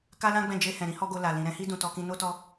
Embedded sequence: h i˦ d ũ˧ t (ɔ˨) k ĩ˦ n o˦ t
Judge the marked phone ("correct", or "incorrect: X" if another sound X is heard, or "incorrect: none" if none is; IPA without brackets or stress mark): incorrect: ɔ˧